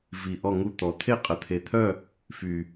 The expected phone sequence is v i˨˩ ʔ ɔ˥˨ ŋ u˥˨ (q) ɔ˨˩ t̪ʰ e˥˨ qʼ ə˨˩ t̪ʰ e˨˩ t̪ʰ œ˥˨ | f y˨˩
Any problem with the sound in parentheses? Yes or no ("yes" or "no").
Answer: yes